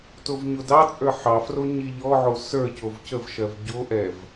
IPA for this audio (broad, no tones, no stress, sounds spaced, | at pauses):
t o v ɲ o d ɑ t͡sʼ ə˞ ħ ɑ f r o ɲ i ʎ ɔ ʕ o s ə˞ c o v c ə v ʃ ɜ v ɟ o ʔ ɛ v